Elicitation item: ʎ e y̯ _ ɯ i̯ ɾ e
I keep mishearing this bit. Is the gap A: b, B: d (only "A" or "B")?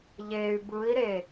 A